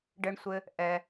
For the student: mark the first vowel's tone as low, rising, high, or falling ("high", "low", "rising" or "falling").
high